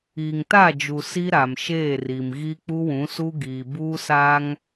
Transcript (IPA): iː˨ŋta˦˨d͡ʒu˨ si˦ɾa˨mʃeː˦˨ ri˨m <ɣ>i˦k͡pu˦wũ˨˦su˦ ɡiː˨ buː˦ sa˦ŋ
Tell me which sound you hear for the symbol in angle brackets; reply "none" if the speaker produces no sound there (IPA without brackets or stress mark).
ɣ